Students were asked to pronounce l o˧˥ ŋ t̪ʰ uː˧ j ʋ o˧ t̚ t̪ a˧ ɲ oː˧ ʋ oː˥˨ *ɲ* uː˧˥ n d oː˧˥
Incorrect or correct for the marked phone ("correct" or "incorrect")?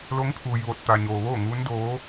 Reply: incorrect